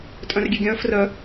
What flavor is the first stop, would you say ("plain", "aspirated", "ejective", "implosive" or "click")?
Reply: ejective